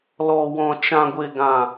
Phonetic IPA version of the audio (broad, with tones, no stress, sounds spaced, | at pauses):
l ɔ˨ w ɔ̃˨ t͡ʃ ã˨ ɡʷ e˨ ɡ ã˨